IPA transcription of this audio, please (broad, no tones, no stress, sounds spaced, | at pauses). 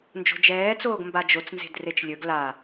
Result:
n d͡ʒ o̤ d͡ʒ ɛː t͡s oː ɡ m b a d͡ʒ o t͡s n z e̤ d r e t͡ʃ lʲ ɵ ɡ l a